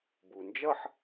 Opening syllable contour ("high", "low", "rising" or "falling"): low